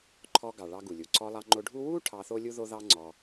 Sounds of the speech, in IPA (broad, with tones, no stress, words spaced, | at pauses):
ǃʰɔ˧ɡɑ˩ ɭɑ˧ɡu˩lʲu˩ ǀɔ˧lˠɑ˧ ŋ͡ǃo˧ɖʱu˥ wu˥ ʈʰɑ˧θo˥lʲu˥ ðo˥ðɑ˥ ŋ͡ǀɔ˧